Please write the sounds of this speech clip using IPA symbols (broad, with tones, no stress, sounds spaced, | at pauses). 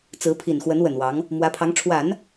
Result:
t͡s ɹ̩˧˥ pʰ i˨˩ n x w ə˧˥ n w ə˨˩ n w ɑ˧˥ ŋ | m w ä˧˥ pʰ ɑ˧˥ ŋ ʈ͡ʂʰ w a˨˩˦ n